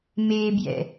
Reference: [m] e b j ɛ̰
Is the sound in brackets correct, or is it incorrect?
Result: correct